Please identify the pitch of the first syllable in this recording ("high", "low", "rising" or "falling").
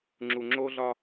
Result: low